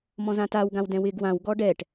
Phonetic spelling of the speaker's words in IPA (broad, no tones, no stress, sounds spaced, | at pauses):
m ɔ̃ z ã t a w ɡ ã w d ɛ̃ w ɪ ɡ w ã w ɡ ɔ ɖ ɛ ʈ